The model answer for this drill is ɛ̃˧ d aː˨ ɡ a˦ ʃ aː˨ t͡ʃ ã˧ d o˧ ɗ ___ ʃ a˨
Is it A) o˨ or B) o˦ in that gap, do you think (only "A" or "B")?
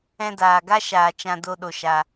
A